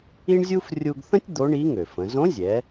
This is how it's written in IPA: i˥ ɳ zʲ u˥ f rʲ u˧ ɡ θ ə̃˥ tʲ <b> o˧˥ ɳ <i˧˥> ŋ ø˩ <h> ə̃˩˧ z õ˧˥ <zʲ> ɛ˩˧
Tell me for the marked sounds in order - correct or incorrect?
incorrect, correct, incorrect, correct

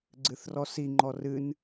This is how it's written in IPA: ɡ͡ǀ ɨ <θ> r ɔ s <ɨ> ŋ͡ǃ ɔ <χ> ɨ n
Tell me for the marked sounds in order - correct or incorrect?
correct, incorrect, incorrect

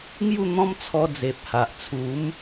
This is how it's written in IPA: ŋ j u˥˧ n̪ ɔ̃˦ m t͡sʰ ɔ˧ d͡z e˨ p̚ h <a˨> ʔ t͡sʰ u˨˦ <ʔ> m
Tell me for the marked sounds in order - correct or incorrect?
correct, incorrect

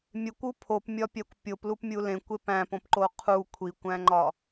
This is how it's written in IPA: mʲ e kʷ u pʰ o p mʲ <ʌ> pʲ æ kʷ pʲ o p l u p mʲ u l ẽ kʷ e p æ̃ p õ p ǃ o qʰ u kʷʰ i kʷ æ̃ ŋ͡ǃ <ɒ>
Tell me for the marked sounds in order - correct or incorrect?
incorrect, correct

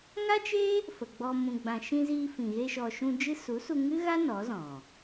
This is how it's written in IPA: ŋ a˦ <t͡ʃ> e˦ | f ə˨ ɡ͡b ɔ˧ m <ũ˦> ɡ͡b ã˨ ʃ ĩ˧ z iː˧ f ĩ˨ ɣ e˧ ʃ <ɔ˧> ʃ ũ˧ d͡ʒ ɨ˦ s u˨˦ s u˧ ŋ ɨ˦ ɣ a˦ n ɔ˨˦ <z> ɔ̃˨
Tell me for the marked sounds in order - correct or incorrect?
correct, incorrect, incorrect, correct

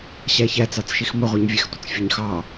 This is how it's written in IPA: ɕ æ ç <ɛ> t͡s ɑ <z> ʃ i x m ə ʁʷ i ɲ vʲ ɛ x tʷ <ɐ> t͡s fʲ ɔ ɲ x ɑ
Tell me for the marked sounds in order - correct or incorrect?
incorrect, incorrect, incorrect

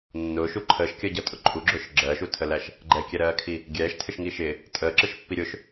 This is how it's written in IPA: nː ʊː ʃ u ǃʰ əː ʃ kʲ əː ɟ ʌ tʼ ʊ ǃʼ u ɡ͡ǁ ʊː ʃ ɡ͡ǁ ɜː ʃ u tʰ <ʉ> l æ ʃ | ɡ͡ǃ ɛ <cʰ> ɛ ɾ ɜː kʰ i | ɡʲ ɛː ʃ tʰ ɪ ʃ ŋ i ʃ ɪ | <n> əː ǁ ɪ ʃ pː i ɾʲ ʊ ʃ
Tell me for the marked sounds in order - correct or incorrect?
incorrect, incorrect, incorrect

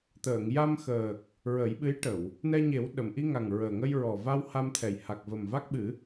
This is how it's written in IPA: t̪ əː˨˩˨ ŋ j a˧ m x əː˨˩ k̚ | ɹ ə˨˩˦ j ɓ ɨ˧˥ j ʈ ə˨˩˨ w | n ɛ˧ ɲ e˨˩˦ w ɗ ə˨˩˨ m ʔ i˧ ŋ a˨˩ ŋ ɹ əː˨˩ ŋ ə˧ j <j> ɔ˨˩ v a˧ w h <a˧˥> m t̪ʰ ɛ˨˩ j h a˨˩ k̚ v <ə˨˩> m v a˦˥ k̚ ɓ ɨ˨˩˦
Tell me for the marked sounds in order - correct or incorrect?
incorrect, incorrect, correct

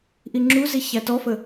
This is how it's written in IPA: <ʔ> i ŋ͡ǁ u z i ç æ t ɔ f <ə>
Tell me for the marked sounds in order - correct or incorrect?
correct, correct

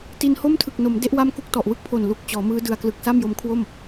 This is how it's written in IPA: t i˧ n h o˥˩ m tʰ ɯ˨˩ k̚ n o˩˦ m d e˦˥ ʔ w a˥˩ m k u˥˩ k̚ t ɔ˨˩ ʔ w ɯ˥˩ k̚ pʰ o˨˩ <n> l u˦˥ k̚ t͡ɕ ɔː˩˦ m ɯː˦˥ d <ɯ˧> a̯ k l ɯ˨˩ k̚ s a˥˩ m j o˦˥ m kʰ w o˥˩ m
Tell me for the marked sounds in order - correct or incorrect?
correct, correct

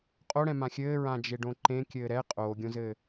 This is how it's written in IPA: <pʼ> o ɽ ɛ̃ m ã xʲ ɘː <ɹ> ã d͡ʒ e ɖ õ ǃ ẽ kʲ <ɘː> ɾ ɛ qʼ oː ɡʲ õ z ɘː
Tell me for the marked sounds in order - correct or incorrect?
incorrect, correct, correct

